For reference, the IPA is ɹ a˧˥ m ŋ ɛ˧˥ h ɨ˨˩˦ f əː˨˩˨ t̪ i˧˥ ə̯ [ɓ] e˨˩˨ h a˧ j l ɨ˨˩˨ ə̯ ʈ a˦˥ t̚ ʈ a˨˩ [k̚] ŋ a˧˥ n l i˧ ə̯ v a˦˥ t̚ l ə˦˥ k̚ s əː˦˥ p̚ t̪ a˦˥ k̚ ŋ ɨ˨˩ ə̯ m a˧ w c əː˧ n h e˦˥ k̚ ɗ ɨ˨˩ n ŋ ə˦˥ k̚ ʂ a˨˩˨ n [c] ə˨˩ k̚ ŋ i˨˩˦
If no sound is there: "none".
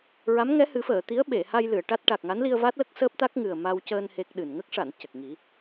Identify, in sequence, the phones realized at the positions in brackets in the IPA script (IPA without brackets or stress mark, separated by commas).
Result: ɓ, k̚, c